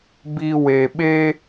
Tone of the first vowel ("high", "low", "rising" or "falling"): low